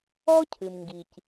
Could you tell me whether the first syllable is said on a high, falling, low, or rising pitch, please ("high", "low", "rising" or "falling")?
high